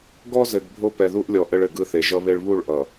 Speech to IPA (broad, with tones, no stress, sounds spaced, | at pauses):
ɡ ɔ˦ z ɘ˨ ɡ bʱ o˦ p ɛ˨ ð u˦ ʔ lʲ ɔ˨ ʔ ɘ˦ ɭ ɘ˨ ɡ ɯ˦ θ e˨ ʒ ʌ˦ β e˦ ɭ β u˦˨ ɭ ʔ ʌ˨